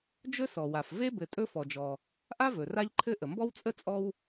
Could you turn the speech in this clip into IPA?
d͡ʒ ɵ˥ s ɔ˩ w a˩ f v e˥ b ɘ˨ tʼ ɵ˦ f ɔ˩ d͡ʒ ɔ˩ | ʔ a˥ v ɵ˩ r a˦ ʎ ǃʰ ɘ˦ ʔ ə˩ m b ɔ˥ w t͡sʼ ə˥ t͡sʼ ɔ˦ w

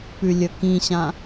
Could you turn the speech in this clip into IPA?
p ʉ lʲ ɵ k ĩ ɕ ã

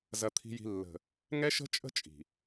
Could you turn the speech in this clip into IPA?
z ɐ˨ t̪ʰ i̤˨ j i̤˨ lː ə̤˨ | ŋ ɛ˦ ʃ ə̤˦ t͡ʃʼ ə̤˦ t͡ʃʼ i̤˨

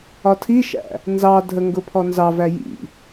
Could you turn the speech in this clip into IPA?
ɒ tʰ i ʃ æ̰ | n z ɑ dʱ ə ŋ ɡ ʊ pʰ ɔ n z ɑ v æ j ḭ

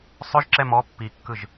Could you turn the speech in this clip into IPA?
sˤ ø ʒ ǁ ɛ m ɔ pː i kː ɯ ʒ

